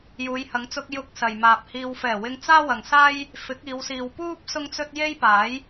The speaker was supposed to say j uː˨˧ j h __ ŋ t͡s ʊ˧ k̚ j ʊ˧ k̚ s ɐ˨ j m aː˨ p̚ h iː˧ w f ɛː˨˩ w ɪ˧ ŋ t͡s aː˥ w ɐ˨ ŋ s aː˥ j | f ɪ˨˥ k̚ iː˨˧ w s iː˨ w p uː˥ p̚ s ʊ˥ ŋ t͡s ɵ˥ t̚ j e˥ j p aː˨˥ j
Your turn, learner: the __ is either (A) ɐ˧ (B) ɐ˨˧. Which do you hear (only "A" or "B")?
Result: B